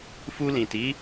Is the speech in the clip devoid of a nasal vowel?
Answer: no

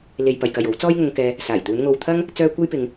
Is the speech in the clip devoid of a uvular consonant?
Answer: yes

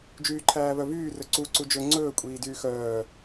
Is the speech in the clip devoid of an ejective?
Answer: no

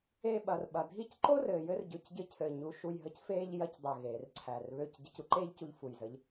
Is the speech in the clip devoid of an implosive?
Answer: no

